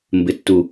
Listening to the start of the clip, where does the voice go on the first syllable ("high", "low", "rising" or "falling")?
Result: low